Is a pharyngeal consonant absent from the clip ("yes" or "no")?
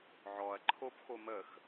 no